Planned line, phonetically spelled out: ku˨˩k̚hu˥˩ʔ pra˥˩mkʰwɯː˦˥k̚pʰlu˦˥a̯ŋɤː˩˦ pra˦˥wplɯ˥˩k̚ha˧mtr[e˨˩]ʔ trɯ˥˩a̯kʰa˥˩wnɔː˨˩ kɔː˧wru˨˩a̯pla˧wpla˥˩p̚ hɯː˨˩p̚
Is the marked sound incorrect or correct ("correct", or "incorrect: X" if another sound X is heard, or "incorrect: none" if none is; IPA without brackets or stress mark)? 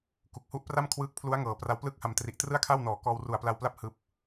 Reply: incorrect: i˨˩